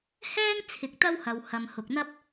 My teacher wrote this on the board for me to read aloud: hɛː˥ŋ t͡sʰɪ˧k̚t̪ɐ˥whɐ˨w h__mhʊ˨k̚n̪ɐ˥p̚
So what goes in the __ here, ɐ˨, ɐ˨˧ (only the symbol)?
ɐ˨